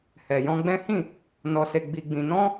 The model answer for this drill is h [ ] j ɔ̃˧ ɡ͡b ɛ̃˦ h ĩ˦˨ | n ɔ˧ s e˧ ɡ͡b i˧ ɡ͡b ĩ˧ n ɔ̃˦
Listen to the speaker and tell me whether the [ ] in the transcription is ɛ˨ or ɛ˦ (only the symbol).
ɛ˨